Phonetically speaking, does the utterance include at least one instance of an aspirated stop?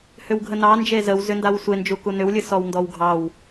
no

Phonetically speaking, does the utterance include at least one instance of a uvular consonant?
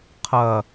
yes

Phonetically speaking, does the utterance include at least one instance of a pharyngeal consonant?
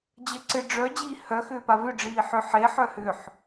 yes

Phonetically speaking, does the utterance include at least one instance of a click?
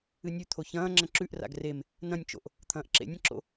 yes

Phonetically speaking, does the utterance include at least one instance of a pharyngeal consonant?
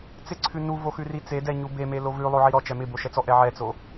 yes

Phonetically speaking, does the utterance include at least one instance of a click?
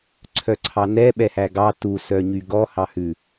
yes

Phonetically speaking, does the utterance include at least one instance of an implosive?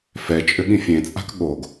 yes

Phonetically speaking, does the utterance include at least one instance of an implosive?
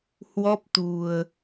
no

